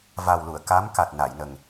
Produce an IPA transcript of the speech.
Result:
v a˨˩ w l u˨˩˨ ə̯ k a˧˥ m k a˨˩ t̚ n a˨˩˨ j n ə˨˩ ŋ

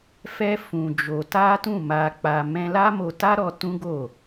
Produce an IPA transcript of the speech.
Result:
f ɛ˦ f ũ˧ d͡ʒ o˧ t a˦ t ũ˦˨ m a˧ k͡p a˧ m ɛ̃˦ l a˦ m o˧ t a˦ ɾ ɔ˧ t ũ˦ ɡ o˦˨

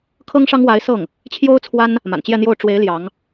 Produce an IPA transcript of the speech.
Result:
kʰ ɤ˥ ŋ ʂ ɑ˥ ŋ w a˧˥ ɪ̯ s ɤ˥˩ ŋ | t͡ɕʰ j o˥ ʊ̯ t͡sʰ w a˥ n | m a̰˨˩ n t͡ɕ j ɛ˥˧ n̪ j o˥˩ ʊ̯ ʈ͡ʂ w e˧˥ ɪ̯ l j ɑ˧˥ ŋ

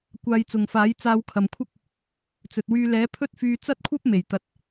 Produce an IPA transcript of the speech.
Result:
kʷ aː˧ j t͡s ʊ˨ ŋ f aː˨˥ j t͡s aː˧ w kʰ ɐ˨ m kʷʰ ɐ˥ k̚ | t͡s ɵ˨ t̚ w yː˧ l ɛː˨˥ pʰ ɵ˥ t̚ f yː˧ t͡s ɐ˥ t̚ kʷʰ ɐ˥ p̚ m e˨˩ j t̪ ɐ˨˥ t̚

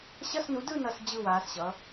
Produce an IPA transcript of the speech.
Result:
ɕ ʌ˧˥˧ s n u˨˥ d ɯ˥˧ n ʌ˧˥˧ s d͡ʑ ɯ˥˧ w aː˨˥ s ɕ ʌ˨˥

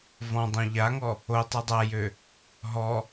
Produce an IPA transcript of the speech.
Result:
v ɔ̃ dˤ õ ʎ a ŋ ɔ | o tˤ ɨ dˤ a j ø | ɦ ɔ

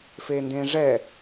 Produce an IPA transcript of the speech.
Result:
f e n d ẽ ʐ ɛ

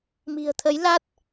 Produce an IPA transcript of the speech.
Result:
m i̤˨˩ ə̯ t̪ʰ ə˨˦ j l a˦˥ t̚

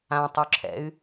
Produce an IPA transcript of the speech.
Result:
ã tˤ u ǁʰ ɛ̰ y̯

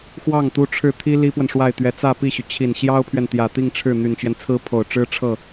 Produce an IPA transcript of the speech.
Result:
x w ɑ˥˩ ŋ t̪ u˥ ʈ͡ʂʰ ɻ̩˥˩ t̪ʰ i˥ l i˥ p w ə˨ n ʂ w a˥˩ ɪ̯ t̪ ɥ ɛ˧˥ t͡s ä˥˧ p i˥˩ ɕ y˩ t͡ɕʰ i˨˩ n ɕ j ɑ˥ ʊ̯ pʰ ɥ ɛ˨ n t̪ j ä˨˩ t̪ i˥˧ ŋ ʈ͡ʂʰ ɻ̩˥˩ n̪ y˨˩ n t͡ɕ ɥ ɛ˦ n t͡sʰ ɹ̩˥ pʰ o˨˩ ʊ̯ ʈ͡ʂ ɻ̩˥ ʈ͡ʂʰ ɤ˥˩

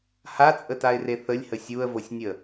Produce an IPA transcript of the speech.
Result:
h a t͡sʼ ə t a ɪ̯ r e θ ə lʲ h ə sʲ u ə̯ v o sʲ nʲ ə

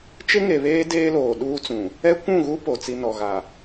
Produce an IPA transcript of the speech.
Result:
t͡ʃ ɪ˦ ŋ e˨ β eː˦ d eː˦ l oː˨ ɗ uː˦ t͡s ũ˨ | ɛ˦ kʷ ũ˦˨ ɣ u˦ p o˨ t͡s i˦ n ɔ˨ ɣ a˨

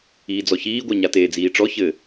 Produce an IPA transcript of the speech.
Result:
iː d͡z ɔ ç iː ɡʷ æ ɲ a t eː d͡z iː ʈ͡ʂ ɔ ç ɘ

